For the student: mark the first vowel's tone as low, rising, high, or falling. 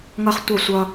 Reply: high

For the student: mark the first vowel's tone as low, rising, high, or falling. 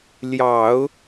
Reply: low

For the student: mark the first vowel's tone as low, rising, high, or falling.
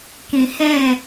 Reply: low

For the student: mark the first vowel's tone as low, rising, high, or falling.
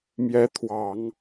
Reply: rising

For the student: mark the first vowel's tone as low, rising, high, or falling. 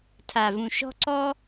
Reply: low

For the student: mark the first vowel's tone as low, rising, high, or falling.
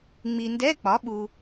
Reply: low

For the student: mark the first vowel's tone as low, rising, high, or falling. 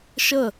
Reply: falling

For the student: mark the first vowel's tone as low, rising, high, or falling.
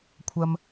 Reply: low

